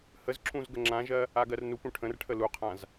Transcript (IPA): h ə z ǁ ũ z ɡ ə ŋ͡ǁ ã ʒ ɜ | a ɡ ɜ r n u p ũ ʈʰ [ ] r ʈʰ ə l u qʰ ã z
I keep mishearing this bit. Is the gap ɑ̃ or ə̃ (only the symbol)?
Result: ə̃